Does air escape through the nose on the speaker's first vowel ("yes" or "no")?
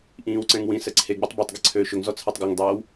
yes